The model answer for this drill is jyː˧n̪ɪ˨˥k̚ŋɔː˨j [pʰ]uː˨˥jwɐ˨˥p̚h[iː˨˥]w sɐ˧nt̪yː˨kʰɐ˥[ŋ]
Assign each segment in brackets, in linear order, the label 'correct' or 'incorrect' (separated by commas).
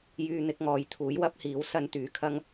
incorrect, correct, correct